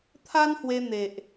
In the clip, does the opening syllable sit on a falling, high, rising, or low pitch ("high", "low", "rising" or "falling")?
high